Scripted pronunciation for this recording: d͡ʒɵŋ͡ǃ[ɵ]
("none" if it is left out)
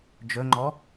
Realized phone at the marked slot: ɔ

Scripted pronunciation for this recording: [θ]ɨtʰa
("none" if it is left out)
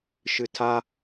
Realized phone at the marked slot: ʃ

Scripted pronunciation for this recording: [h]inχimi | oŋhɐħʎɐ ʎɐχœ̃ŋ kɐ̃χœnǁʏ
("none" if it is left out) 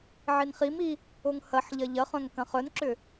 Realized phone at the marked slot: ʕ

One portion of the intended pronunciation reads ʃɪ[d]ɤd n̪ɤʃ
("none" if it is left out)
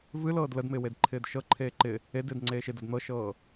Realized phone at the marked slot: d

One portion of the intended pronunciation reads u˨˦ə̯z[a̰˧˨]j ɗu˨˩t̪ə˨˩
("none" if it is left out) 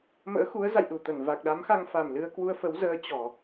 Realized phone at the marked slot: a̰˧˨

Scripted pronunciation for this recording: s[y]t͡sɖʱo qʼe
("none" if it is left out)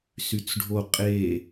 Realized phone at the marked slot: y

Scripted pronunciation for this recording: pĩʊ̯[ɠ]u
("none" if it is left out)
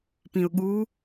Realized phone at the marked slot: ɠ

